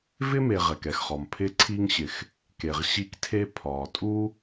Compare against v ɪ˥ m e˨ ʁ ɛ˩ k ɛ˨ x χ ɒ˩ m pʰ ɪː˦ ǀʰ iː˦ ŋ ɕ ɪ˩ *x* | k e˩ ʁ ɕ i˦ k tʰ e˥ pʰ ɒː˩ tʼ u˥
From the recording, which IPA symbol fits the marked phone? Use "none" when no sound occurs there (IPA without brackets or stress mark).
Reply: x